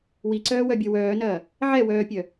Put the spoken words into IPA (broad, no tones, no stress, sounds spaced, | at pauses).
w i ǀ œː w œ bʲ ɐ w œː n ɐː | ʕ ɛ w œː pʲ œ